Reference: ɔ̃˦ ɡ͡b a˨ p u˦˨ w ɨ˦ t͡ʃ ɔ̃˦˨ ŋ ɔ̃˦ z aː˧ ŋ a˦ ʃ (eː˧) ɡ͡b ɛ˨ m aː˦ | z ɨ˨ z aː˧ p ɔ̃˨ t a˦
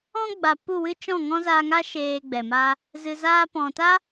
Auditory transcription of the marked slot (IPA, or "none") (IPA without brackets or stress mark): eː˧